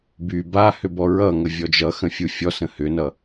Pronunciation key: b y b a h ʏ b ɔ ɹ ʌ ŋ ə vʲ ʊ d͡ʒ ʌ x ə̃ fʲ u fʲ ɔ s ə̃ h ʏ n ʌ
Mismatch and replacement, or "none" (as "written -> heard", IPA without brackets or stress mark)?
ʊ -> ɔ